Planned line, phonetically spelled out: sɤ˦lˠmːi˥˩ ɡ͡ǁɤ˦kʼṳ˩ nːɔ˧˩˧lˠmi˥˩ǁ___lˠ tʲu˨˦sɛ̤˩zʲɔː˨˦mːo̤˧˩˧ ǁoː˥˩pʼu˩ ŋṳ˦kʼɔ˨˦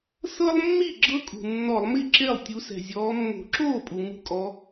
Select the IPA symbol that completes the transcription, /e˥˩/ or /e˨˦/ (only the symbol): e˥˩